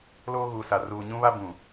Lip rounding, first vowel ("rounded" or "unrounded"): rounded